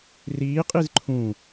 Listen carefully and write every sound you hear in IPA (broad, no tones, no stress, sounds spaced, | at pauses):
r iː qʼ i z ǃʰ ũ